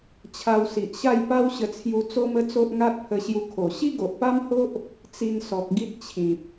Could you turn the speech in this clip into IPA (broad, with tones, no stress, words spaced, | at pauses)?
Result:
t͡ɕʰa˧wsi˨ʔɕa˥˧j pa˦wɕə˧t͡sʰju˧ t͡so˦mə˦t͡so˦ʔ ŋa˦t̚pʰə˧ɕju˧kʰo˨˩ ɕi˦ɡo˨ʔpa˦mho˦ʔ | t͡si˧n sɔ˨k̚ɡi˦t̚t͡ɕʰĩ˨p̚